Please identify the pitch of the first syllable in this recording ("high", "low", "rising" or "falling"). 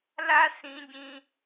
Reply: high